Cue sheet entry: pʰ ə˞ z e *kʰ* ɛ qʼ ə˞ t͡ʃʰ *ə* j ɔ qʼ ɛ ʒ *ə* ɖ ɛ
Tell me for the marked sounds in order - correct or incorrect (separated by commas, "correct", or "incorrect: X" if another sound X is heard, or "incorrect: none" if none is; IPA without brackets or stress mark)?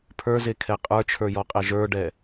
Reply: correct, incorrect: ə˞, incorrect: ə˞